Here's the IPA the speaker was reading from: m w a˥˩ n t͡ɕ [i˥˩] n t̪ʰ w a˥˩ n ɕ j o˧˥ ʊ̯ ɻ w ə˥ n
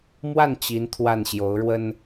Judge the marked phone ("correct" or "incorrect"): incorrect